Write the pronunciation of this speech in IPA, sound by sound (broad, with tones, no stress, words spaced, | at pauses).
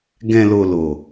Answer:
ɡɛ̃˨lo˨ lo˨